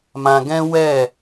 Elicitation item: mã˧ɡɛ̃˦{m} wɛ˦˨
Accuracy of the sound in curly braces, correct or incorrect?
incorrect